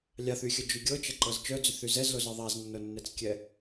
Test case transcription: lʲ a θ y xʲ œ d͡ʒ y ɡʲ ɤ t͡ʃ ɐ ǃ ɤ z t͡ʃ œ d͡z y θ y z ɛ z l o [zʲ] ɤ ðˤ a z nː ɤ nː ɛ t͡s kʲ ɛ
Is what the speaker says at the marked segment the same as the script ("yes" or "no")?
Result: no